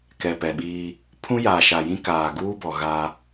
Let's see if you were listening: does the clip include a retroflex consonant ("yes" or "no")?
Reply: no